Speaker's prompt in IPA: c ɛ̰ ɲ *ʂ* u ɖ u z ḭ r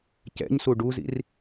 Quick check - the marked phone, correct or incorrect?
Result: incorrect